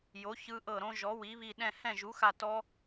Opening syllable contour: rising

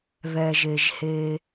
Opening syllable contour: low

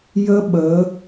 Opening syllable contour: high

